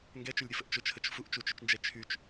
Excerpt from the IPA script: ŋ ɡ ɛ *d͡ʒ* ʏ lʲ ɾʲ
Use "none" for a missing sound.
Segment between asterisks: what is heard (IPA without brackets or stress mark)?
t͡ʃ